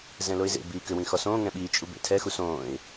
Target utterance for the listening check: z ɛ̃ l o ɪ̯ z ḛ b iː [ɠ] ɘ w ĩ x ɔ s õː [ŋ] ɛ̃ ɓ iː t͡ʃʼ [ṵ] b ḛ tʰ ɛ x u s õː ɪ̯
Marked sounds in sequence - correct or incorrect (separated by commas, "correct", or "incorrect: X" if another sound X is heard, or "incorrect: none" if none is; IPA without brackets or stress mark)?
incorrect: k, correct, incorrect: u